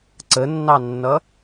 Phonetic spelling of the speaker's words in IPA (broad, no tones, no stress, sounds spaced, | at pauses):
ǀ ə nː ɑ nː ʌ